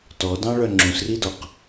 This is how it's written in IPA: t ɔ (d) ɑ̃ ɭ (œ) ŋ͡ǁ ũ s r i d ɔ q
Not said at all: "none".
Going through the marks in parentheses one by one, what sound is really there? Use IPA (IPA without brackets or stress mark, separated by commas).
d, œ